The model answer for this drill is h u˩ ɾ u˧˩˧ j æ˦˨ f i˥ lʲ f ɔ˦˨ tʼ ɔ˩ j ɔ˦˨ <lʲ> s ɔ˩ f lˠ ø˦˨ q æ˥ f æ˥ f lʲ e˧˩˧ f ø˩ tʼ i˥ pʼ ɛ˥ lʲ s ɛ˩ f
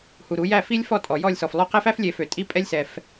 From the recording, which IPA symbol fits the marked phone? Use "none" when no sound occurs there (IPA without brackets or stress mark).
lʲ